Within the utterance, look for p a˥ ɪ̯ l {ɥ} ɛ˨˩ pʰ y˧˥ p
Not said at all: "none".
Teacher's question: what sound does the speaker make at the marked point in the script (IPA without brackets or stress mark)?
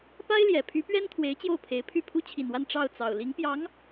j